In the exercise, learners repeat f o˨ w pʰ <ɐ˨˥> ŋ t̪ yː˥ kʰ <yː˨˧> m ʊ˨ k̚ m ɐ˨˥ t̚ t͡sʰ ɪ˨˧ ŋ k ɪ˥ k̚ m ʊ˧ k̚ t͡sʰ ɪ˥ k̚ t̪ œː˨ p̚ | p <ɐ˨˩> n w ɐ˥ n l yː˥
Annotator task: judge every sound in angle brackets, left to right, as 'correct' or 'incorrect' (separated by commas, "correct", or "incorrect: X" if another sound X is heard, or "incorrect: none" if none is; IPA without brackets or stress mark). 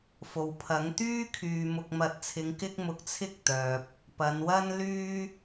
correct, incorrect: yː˨, incorrect: ɐ˨˧